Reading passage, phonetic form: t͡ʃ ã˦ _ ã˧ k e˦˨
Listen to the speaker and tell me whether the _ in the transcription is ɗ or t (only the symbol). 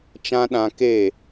ɗ